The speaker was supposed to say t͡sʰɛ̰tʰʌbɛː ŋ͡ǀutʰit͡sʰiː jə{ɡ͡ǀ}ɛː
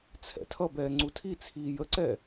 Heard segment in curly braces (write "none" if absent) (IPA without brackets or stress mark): ǀ